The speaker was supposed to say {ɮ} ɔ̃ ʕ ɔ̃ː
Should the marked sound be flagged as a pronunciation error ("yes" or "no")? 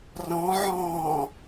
yes